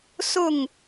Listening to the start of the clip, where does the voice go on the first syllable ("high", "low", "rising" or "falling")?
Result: falling